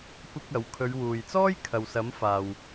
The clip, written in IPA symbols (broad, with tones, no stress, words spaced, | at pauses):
kʷɪ˥k̚ɐ˨˥w kʰɵ˨˧ɥwuː˨jt͡sɔː˥j kʰɐ˨wsɐ˨˥m faː˨w